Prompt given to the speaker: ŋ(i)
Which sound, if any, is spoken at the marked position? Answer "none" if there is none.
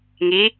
i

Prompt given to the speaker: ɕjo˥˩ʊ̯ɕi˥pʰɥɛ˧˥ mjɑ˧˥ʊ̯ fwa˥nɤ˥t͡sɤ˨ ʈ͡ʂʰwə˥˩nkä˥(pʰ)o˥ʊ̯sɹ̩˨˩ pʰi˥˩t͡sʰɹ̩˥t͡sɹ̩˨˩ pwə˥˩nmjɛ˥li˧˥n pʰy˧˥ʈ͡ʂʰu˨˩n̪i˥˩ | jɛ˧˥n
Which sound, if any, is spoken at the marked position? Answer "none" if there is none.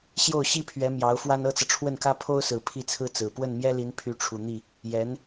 pʰ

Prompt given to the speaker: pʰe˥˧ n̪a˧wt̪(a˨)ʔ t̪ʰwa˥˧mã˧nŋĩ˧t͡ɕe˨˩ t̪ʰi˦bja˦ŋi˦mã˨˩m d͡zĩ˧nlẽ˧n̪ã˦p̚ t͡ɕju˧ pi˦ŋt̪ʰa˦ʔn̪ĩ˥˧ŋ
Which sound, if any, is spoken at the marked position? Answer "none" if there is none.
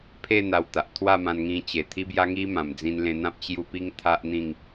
a˨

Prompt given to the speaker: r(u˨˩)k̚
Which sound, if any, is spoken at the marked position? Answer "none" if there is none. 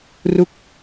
u˥˩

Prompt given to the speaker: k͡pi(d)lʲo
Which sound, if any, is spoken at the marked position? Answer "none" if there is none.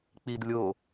d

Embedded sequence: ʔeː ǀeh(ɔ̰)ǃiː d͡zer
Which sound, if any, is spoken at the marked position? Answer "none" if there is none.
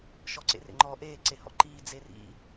ɔ̰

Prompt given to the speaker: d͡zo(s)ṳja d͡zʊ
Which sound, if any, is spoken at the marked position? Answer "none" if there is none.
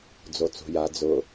t͡s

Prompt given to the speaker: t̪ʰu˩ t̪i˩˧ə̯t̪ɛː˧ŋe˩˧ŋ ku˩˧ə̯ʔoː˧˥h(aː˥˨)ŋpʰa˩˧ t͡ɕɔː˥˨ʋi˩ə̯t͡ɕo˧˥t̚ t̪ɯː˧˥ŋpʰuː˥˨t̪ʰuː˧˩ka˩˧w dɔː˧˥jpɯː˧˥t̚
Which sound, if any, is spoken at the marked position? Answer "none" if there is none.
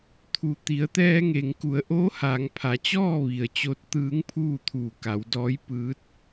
aː˩˧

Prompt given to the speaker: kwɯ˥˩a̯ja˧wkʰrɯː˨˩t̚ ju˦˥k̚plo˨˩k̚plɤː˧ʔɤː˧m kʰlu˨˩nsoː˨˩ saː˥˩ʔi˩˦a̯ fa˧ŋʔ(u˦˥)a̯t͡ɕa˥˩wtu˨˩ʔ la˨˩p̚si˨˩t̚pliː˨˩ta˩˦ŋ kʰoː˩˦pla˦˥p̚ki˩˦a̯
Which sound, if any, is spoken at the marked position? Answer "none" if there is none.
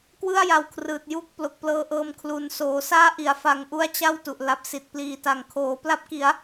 u˦˥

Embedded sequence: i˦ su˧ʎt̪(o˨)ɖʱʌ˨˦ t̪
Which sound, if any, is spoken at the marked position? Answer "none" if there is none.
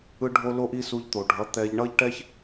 o˨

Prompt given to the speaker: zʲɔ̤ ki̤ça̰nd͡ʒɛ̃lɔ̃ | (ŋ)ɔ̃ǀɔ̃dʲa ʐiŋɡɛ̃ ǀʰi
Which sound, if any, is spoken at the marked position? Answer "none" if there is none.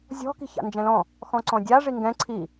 x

